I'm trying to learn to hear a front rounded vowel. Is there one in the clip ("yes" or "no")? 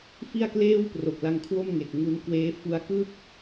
no